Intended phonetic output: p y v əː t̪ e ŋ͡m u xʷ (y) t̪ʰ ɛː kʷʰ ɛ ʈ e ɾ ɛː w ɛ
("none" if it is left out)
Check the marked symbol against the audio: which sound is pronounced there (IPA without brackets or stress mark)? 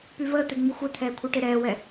e